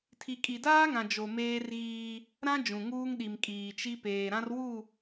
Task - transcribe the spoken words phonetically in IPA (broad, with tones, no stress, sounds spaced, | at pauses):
tʰ i˨ kʼ i˨ d aː˦ ŋ ã˨ d͡ʒ o˨ m eː˦ r ɣ iː˦ | ɾ ã˦ d͡ʒ ũ˨ ŋ uː˦ ŋ ɗ i˨ m kʼ iː˨ t͡ʃ i˦ p eː˨ ɾ ã˦ r w u˦˨